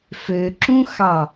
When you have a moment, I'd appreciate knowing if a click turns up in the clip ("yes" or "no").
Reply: yes